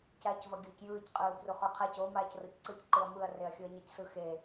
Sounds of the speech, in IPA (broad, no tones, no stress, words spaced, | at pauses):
caːcvʌɡʲɯːcjɯːc qʼɯːbruχoqʰac o maːcrocǀɯc ǃɯɐ̯mɯɐ̯ reɐ̯xʲɯɐ̯ɲacsɯ xe